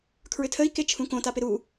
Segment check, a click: absent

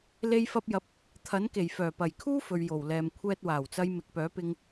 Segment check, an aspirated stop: present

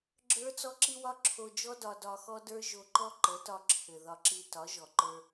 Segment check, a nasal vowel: absent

